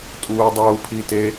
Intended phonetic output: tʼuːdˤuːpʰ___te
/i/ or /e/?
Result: i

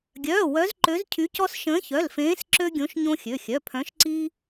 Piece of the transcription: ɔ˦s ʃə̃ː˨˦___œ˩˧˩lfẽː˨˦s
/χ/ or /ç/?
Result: ç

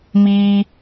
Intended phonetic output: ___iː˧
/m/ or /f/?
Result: m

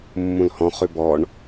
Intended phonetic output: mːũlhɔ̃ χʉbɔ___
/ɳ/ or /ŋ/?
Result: ɳ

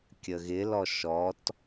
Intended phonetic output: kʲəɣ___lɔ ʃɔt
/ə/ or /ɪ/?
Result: ɪ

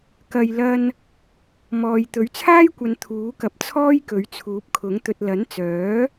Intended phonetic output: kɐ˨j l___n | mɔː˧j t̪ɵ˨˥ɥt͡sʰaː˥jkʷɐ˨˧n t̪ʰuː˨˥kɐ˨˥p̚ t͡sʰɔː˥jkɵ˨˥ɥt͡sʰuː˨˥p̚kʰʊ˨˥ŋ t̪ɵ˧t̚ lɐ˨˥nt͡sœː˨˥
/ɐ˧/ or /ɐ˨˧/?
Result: ɐ˧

